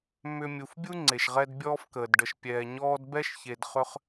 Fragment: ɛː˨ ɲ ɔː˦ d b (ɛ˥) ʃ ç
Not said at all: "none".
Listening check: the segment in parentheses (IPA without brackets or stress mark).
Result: ɛ˥